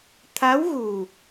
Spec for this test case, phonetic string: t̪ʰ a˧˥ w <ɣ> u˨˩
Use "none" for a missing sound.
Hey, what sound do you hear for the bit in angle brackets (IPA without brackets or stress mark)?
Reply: ɣ